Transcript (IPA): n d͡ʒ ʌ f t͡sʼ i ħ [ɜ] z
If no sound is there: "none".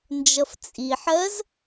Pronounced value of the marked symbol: ɜ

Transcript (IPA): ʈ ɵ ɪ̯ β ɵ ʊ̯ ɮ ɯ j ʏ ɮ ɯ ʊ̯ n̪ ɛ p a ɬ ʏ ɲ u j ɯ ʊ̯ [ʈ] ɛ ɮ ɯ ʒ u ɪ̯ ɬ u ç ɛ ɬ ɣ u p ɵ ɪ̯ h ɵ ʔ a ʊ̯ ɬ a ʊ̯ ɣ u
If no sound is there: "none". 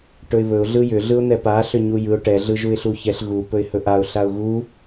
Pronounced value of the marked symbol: ʈ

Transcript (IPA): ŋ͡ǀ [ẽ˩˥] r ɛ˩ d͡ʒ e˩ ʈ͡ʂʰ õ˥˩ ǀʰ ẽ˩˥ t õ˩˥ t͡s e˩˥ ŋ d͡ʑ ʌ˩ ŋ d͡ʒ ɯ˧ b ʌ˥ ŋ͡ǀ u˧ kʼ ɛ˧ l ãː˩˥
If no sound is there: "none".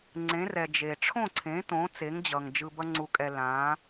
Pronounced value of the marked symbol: ẽ˩˥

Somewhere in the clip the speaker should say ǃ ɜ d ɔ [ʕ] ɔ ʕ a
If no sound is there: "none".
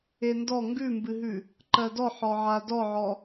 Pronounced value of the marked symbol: ħ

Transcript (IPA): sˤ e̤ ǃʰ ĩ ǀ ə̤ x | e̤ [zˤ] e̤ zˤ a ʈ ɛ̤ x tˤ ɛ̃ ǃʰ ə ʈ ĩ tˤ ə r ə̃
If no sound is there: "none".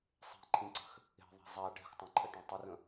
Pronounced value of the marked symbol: ðˤ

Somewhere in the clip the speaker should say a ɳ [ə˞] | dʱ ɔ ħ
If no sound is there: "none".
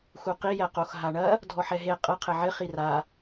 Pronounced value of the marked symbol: ɐ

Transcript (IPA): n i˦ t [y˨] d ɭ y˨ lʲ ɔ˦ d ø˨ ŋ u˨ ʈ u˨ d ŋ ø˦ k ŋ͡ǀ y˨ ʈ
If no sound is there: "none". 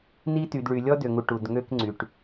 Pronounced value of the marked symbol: y˨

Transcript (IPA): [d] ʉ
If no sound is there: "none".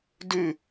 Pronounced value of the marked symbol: d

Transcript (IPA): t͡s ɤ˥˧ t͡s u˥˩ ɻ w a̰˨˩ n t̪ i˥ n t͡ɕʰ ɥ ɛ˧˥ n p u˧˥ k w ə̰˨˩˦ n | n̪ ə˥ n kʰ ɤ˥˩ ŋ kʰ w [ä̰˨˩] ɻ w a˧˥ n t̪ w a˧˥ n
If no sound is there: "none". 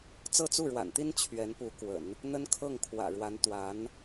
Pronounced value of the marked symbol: ä̰˨˩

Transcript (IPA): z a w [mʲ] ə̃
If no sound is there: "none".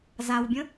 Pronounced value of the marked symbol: bʲ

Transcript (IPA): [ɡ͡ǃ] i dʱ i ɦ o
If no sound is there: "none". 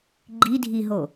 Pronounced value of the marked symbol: ɡ͡ǃ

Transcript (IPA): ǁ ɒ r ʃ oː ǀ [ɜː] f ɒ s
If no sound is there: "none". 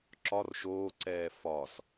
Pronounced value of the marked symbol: ɛː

